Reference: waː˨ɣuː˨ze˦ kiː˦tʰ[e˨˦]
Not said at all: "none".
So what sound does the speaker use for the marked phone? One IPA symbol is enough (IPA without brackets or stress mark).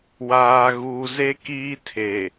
e˨